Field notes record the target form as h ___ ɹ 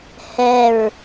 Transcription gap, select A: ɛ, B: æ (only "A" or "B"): A